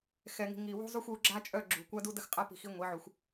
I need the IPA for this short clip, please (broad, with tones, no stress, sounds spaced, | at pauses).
x ɛ˨ ŋ i̤˨ ŋ i˨ w ṳ˦ zˤ u˦ xʷ u˨˦ ɡ͡ǁ a˦ t͡ʃʼ œ˦˨ ɡ͡ǁ ṳ˨ kʷ a˦ d u˦ d ə˦ x qʼ a˦ p i̤˨ x i˦ ŋʷ e˨˦ ʕ u˨ xʷ